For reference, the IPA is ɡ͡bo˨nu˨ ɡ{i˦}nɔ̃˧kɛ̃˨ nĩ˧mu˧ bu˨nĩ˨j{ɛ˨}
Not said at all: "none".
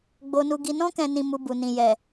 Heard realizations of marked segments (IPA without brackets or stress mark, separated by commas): i˨, ɛ˨